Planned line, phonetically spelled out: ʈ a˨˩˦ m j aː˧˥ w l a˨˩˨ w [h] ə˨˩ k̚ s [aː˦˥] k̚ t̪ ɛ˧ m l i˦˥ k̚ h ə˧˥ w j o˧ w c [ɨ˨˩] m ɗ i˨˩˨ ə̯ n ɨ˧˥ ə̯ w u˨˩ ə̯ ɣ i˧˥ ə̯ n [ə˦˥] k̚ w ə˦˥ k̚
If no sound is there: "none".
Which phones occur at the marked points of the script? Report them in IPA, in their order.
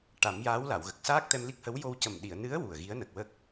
ɣ, aː˦˥, ə˨˩, ə˨˩

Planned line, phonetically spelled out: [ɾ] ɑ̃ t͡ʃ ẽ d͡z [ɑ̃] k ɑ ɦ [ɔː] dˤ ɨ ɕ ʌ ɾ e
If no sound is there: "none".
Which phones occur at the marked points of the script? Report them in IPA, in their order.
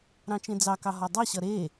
ɾ, ɑ, ɔ

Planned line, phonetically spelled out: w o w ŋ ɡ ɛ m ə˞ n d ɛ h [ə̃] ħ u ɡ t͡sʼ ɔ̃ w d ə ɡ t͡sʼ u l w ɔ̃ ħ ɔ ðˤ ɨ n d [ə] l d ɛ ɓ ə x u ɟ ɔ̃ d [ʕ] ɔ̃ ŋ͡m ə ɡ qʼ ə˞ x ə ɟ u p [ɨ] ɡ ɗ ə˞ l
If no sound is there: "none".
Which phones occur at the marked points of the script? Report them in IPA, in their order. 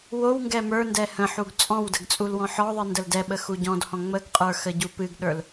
ə̃, ə, h, ɨ

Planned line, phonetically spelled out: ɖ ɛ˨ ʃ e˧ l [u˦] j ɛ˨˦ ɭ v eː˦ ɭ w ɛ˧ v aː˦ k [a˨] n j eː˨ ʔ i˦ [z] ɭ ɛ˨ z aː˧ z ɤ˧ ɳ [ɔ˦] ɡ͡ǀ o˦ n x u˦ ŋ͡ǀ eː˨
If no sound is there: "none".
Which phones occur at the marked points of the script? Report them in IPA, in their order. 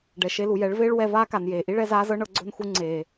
u˨, a˨, none, ɤ˦

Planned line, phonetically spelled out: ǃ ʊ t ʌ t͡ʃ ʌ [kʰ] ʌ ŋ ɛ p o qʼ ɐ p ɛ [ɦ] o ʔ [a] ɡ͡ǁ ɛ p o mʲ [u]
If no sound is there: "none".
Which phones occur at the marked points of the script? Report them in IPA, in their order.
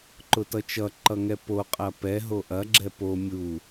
ǃ, ɦ, ɐ, u

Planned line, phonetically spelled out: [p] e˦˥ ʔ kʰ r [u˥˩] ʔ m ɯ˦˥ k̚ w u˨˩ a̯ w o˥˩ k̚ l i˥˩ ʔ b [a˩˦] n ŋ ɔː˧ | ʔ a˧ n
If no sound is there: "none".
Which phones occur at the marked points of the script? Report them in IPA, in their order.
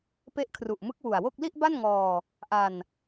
p, u˨˩, a˥˩

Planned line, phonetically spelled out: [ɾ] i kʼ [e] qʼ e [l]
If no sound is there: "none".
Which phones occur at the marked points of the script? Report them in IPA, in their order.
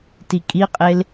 t, i, l

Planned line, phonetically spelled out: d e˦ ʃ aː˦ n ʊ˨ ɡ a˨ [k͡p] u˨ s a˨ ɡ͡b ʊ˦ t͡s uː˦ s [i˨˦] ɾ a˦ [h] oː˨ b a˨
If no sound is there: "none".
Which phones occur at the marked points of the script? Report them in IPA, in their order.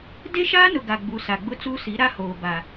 ɡ͡b, i˨˦, h

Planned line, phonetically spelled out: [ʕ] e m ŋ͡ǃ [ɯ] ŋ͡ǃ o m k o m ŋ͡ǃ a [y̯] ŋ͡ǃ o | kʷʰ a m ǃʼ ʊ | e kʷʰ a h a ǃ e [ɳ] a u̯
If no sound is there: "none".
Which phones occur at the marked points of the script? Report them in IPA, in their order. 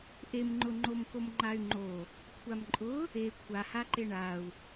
ʔ, ʊ, y̯, ɳ

